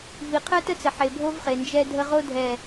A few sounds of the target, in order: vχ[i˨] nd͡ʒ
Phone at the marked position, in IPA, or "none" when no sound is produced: e˨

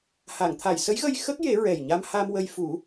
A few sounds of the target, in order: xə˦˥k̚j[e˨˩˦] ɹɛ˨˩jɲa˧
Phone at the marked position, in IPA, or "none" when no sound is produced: e˨˩˦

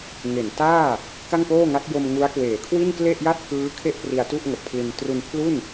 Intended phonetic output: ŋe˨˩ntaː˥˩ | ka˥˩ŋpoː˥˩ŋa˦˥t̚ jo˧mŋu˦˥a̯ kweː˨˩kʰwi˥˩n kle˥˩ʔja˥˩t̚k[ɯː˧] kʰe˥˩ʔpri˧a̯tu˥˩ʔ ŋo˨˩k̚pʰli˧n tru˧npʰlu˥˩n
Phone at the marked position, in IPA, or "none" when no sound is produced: ɯː˦˥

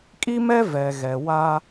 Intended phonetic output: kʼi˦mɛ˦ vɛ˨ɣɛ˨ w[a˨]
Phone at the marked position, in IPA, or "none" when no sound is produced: a˦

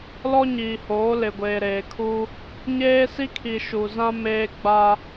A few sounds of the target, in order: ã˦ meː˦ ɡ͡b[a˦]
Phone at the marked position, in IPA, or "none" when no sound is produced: a˦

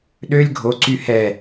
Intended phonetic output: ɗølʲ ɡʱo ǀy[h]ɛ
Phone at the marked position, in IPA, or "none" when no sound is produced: h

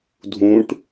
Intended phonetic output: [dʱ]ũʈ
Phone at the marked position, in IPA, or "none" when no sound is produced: dʱ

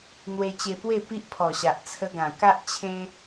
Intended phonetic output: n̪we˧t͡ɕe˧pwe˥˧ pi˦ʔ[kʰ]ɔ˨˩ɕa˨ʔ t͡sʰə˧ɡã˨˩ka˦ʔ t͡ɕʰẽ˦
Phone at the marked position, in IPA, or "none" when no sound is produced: pʰ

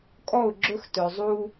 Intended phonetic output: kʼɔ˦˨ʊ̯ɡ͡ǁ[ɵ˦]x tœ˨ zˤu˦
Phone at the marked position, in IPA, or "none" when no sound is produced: ɵ˦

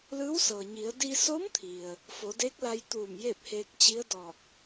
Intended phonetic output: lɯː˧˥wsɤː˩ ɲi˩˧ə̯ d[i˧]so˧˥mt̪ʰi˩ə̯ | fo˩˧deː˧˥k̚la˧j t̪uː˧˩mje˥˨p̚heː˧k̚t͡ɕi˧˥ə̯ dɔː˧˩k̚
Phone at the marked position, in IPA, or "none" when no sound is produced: i˧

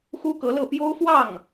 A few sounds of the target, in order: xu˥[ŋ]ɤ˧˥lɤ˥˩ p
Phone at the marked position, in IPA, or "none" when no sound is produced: k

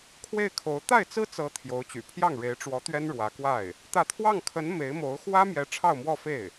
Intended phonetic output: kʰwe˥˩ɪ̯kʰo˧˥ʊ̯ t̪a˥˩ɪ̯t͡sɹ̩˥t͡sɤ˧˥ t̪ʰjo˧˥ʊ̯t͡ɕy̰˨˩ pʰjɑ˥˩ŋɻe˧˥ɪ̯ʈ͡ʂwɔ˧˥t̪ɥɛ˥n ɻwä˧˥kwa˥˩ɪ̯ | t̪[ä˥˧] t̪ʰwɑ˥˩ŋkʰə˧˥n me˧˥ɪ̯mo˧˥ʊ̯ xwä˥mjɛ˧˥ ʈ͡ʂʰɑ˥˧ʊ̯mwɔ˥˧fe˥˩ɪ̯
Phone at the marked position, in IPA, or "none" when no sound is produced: ä˥˧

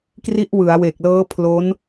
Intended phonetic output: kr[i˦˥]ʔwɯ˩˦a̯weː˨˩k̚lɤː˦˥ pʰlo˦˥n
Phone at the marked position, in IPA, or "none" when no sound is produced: i˦˥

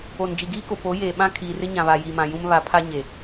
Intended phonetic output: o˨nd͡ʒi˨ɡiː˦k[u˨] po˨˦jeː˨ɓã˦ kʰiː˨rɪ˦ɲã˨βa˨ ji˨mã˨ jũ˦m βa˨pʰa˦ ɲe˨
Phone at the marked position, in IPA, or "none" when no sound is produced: o˨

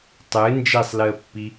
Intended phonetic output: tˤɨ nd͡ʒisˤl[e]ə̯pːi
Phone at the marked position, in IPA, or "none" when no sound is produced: ɨ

